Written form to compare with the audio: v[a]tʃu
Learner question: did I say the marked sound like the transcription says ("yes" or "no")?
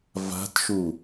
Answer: no